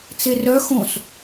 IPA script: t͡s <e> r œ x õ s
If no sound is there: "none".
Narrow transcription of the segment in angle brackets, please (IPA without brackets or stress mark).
e